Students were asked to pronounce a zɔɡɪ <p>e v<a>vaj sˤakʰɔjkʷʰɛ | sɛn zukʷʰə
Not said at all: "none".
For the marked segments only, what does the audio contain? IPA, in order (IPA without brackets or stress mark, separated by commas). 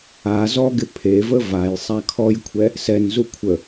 pʰ, ə